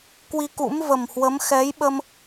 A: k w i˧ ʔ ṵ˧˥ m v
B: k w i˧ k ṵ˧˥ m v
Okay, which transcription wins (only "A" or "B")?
B